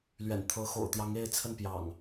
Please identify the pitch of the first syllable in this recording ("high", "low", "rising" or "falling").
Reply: low